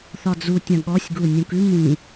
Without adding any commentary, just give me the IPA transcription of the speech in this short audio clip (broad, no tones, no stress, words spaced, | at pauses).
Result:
θɒd͡zutʲɐ̃ ɠɔsʲɡu nʲũkʉ mĩ